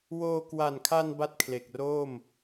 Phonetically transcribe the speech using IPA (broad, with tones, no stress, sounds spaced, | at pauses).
w oː˧ k w a˨˩ n kʰ a˧ n b a˥˩ t̚ kʰ l e˨˩ k̚ r oː˥˩ m